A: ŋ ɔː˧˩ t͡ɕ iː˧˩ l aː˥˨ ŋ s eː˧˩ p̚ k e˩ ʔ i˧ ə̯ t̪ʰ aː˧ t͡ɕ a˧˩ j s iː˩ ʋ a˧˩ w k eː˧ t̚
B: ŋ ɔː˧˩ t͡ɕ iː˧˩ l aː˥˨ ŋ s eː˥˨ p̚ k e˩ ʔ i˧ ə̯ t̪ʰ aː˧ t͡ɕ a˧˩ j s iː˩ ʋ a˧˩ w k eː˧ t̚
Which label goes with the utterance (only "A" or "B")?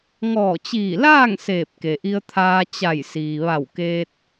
A